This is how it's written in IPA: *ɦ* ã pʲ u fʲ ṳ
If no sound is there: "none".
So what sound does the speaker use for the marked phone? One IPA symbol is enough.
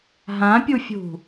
ɦ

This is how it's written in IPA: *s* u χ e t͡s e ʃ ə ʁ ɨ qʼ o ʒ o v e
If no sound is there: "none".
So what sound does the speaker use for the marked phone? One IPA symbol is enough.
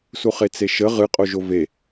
s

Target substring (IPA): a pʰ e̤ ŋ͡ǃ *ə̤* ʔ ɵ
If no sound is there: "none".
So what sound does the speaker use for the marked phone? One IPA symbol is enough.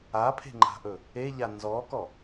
a̤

